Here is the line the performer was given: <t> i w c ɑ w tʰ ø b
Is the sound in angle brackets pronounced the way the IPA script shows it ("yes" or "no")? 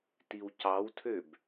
yes